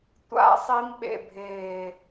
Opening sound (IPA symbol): tʷ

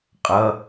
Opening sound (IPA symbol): qʼ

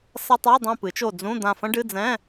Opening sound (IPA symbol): s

